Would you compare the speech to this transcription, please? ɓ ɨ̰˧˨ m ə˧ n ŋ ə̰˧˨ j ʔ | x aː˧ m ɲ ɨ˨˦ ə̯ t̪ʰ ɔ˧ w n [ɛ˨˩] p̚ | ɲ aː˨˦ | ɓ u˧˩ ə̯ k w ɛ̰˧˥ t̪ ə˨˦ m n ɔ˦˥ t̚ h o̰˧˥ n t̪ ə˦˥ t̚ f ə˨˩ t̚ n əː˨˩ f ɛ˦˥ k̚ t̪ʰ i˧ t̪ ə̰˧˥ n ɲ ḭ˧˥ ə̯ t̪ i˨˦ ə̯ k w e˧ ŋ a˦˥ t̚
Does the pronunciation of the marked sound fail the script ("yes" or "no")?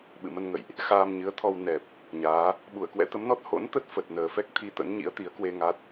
no